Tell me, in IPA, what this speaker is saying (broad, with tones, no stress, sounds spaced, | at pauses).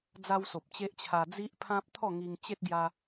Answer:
d͡z a˦ w s o˨ p̚ t͡ɕ e˦ ʔ t͡ɕʰ a˧ d͡z i˦ ʔ pʰ ã˦ p̚ t̪ʰ ɔ˥˧ ŋ i˧ ŋ t͡ɕ e˦ t̚ ɡ j a˧